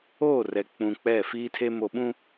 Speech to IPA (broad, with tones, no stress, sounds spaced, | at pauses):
o˦˨ r ɛ˨ k͡p ũ˨ k͡p ɛ˦˨ f iː˦ tʰ e˦ m o˨ ɓ ũ˦